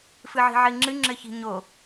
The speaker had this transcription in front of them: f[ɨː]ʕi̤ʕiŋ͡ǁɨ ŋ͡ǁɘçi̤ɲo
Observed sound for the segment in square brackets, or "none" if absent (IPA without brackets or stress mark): ɨ